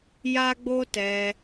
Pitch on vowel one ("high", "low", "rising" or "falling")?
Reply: high